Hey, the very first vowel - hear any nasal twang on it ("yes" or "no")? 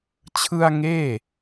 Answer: no